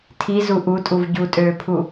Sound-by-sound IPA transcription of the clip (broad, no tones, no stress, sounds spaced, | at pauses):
tʰ i z u ʔ u tʼ u v ɟ u tʼ øː pʰ u